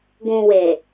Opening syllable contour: low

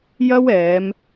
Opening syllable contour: high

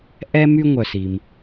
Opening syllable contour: high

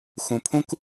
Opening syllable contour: low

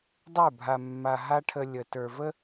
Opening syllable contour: falling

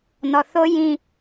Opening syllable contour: low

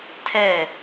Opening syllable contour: falling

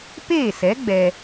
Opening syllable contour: falling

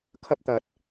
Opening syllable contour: high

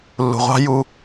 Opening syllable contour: low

